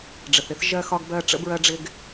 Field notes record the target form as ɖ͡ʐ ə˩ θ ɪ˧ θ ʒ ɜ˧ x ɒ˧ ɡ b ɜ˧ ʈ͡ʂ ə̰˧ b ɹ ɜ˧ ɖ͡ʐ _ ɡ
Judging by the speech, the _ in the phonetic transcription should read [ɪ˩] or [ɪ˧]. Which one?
ɪ˧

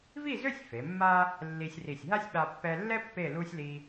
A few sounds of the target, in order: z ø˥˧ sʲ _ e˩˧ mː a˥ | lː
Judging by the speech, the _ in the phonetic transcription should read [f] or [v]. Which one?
f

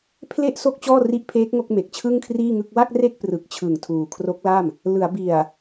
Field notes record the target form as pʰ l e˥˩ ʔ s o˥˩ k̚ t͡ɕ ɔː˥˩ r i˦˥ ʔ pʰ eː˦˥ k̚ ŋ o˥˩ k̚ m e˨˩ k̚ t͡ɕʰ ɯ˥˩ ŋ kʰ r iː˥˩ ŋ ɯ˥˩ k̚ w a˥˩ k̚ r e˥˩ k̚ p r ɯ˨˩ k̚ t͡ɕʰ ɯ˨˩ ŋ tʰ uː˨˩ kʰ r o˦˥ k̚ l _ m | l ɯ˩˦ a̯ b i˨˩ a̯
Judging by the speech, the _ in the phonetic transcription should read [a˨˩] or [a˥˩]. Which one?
a˥˩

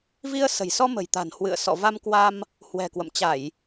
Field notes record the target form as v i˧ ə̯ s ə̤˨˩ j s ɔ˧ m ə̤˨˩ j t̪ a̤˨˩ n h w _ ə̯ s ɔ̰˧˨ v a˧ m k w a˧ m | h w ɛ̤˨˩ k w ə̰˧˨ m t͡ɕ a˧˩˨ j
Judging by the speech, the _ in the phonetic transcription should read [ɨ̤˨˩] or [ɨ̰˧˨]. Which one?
ɨ̰˧˨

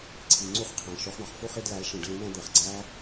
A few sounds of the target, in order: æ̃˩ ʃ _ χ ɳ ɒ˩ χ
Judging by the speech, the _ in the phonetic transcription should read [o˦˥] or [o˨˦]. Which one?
o˨˦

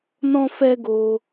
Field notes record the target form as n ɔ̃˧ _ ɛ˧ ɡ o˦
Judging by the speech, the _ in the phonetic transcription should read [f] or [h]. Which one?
f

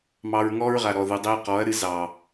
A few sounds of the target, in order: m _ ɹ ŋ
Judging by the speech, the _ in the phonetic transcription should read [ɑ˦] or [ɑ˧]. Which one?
ɑ˧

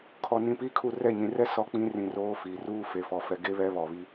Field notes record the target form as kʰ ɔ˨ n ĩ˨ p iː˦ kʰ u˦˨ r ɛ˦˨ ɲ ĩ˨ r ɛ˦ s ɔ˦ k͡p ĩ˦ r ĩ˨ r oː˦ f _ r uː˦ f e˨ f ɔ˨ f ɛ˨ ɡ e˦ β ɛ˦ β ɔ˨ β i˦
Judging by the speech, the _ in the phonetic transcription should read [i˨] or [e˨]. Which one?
i˨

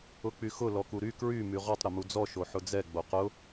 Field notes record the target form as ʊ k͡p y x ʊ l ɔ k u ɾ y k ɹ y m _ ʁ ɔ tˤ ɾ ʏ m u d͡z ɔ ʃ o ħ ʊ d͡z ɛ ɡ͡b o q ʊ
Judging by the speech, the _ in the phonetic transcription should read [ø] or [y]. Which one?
y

